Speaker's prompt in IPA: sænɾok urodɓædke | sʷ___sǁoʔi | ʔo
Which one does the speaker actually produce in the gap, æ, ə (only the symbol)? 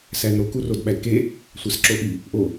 æ